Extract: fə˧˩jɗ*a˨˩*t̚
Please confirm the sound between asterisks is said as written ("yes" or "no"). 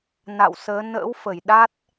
no